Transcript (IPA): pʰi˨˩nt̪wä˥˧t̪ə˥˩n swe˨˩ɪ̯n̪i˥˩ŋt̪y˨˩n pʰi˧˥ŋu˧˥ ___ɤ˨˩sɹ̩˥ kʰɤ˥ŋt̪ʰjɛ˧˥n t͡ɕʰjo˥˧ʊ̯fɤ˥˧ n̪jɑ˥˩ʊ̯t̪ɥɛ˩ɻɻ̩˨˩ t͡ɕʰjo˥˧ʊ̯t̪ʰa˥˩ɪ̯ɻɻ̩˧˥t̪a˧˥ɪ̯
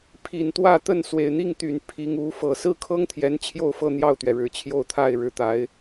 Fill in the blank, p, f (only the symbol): f